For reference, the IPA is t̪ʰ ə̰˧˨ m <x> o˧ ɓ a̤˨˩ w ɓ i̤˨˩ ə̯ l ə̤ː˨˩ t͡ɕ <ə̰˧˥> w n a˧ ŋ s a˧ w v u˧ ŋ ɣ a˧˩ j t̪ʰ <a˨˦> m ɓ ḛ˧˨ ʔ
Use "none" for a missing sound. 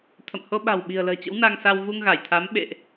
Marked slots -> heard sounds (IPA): h, ə̰˧˥, a˨˦

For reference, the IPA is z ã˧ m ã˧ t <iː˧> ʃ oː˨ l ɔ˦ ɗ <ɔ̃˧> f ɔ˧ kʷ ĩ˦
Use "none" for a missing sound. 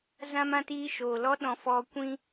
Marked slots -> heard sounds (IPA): iː˧, ɔ̃˧

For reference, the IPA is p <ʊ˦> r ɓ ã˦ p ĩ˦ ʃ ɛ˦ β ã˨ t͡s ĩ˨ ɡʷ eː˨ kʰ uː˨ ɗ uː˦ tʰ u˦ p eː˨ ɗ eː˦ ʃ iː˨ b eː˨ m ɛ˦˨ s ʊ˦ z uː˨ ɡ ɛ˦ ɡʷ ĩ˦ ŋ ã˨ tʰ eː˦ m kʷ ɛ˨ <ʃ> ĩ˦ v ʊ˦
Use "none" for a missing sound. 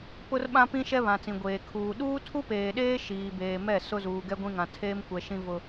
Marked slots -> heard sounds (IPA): ʊ˦, ʃ

